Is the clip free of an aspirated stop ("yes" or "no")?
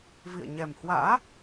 yes